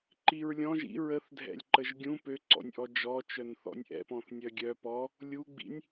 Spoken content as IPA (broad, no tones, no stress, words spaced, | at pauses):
ǃiɹlʲɔ̃ ʒḭ ɹəθdʱɛ̰lʲ ǃəʒɡʲũ pøǀɔ̰nʲʔɔ d͡ʒɔt͡ʃœn θɔ̰nʲʔɛ̰p ɔ̃θnʲœɡʲœ pɔ | lʲuɡ͡bḭnʲ